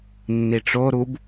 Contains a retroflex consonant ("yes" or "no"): yes